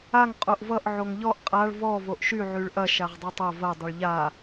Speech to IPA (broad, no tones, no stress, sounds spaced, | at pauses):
a ŋ qʼ o ʔ v ʌ ʔ ʕ o ŋ ʎ ɔ ʔ qʼ a ɭ v ɔ v o ʔ ʃ y ʕ y ɭ ʔ ɐ ʃ a ʁ dˤ y tˤ ɐ v ɐ dˤ ʌ ɭ ʎ a